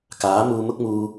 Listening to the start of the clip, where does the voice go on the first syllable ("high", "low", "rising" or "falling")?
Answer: rising